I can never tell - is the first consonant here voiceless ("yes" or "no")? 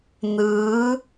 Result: no